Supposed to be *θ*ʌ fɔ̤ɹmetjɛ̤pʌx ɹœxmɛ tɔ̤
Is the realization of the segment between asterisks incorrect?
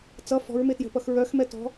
yes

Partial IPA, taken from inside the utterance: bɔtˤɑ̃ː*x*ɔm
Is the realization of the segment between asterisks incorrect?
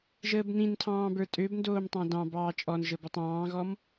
yes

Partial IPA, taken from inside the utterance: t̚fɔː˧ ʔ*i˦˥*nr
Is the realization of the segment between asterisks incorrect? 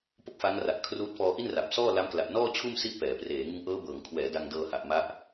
yes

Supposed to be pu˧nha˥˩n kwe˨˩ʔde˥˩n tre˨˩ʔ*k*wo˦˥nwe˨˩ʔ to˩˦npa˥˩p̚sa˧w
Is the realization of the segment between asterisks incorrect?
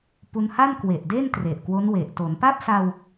no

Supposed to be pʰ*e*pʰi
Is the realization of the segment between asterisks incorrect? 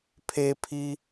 no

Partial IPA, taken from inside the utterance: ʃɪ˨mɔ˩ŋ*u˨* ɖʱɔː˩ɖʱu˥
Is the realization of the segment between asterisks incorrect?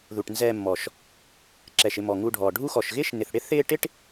no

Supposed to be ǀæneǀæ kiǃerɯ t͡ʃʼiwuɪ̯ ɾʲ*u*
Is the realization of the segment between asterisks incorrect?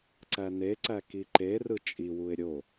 yes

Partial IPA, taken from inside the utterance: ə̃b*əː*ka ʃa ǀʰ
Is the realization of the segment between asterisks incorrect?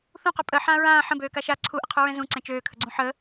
yes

